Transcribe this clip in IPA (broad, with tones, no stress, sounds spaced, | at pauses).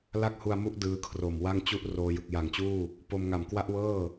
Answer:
l a˥˩ k̚ h u˧ a̯ m u˦˥ ʔ d ɯː˦˥ kʰ r o˨˩ m w a˥˩ ŋ t͡ɕ u˥˩ ʔ r oː˧ j ɯ˨˩ k̚ j a˨˩ ŋ t͡ɕ uː˥˩ | p o˧ m ŋ a˨˩ m k w a˥˩ ʔ w ɤː˥˩